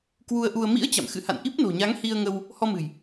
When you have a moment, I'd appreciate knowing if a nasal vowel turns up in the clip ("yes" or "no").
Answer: no